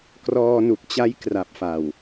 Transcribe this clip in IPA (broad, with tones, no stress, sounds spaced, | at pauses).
k r ɔː˧ n u˨˩ k̚ t͡ɕ a˦˥ j k r a˨˩ p̚ f a˨˩ w